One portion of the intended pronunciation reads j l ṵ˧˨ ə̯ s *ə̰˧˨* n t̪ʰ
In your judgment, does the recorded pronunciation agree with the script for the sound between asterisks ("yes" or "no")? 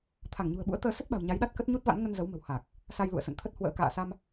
yes